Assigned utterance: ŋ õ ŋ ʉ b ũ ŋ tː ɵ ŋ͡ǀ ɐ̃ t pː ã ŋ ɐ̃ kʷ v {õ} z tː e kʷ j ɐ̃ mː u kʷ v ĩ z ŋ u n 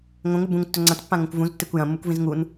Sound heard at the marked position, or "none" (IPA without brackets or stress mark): ũ